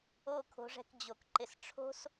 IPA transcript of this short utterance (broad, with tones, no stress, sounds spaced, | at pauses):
o˦˨ kʰ o̤˨˦ ʐ ɛ̤˧ k d͡ʑ o˨ k ǃ ɪ˨ s ʈ͡ʂʰ o̤˦ s